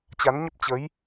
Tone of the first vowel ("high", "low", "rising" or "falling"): rising